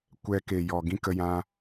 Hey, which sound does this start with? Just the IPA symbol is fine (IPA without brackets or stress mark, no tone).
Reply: kʷ